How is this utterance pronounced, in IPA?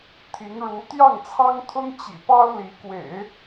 t̪ʰi˧˥ŋɻu˧˥ t̪jɑ˥˩ŋt͡sʰɑ˥ŋt̪ʰʊ˥ŋ t͡ɕḭ˨˩pɑ˥ʊ̯ li˧˥kwḛ˨˩˦ɪ̯

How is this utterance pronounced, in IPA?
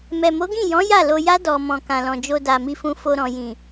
mɛ˨mo˨˦ɡĩ˦˨jɔ̃˨˦ ja˦˨lo˧ja˦ dɔ˧ mɔ̃˨kã˨lɔ̃˨d͡ʒo˧ da˨mi˧fũ˧ fo˧ɾɔ̃˨ jĩ˨

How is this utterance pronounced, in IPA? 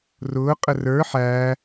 rʊː qʼərə˞ ħæː

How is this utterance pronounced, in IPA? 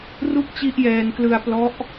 ru˥˩k̚t͡ɕi˦˥ʔjɛː˧nklɯ˧a̯ plɔ˦˥ʔ

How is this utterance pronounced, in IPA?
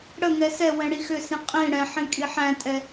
ɽəŋɛ sɛwɛ̃ ɽixʏsĩ qʼĩ ɽɛ̃ħĩ kʼiħæ̃tʼɛ

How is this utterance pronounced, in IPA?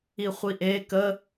iχʷiʔe kə

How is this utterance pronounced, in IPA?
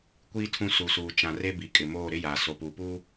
kʷiː˦ tʰũ˦su˨suː˨ t͡ʃã˨re˦ bi˨kʼɪ˨moː˦˨ ɾɪ˦ jaː˨ so˨puː˨puː˦

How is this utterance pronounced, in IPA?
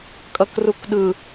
kʼʌkrukɗɯ

